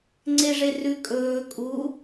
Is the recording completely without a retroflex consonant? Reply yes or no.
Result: no